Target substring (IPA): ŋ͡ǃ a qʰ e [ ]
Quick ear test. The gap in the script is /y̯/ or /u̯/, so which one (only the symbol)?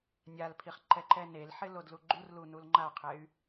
y̯